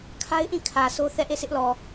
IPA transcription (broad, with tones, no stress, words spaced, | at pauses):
kʰa˦ɪ̯ʔĩ˦˨ kʰä˨sʰo˦ θɛ˦˨ʔe˦˨sɪ˦ʔlɔ˨